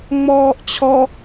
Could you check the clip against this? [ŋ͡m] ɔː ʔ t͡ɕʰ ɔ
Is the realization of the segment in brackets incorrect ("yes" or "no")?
no